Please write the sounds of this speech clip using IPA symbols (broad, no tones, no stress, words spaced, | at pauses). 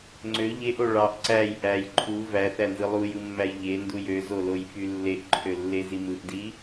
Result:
ŋ͡ǀø ʎeʔo ɭɑʔ ǀæj ʔæj ǃʰu væθænzɯ lˠujɯmːæj ʎenduj øzolojfy lːeʔǃʰølːezi mɯʔdi